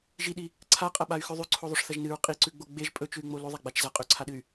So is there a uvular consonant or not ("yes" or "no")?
yes